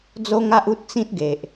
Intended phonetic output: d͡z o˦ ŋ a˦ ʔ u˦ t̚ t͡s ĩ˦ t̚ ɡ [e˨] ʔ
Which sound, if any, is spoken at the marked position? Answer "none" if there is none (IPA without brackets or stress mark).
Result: e˨